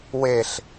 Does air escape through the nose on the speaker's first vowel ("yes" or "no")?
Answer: no